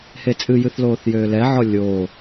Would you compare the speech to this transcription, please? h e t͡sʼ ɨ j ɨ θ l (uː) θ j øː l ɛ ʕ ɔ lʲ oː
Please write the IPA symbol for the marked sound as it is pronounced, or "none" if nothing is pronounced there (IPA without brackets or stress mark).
oː